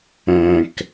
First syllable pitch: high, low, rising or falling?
low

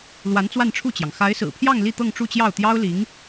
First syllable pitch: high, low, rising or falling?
rising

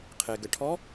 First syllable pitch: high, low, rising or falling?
low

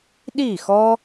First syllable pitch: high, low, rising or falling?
falling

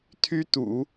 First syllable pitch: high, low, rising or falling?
high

